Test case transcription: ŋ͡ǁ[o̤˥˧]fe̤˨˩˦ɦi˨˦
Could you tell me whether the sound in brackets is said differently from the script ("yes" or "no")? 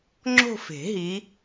no